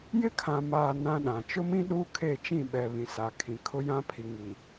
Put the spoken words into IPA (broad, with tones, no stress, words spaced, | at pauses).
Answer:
jɪ˦kʰã˨maː˨ nã˦ɗã˨ t͡ʃʊ˦mĩ˦ ɗu˦ kʰe˦˨t͡ʃĩ˦˨ɓɛ˨ βĩ˨saː˨kʰĩ˨ kʰʊ˦ jã˦pʰi˨ŋi˨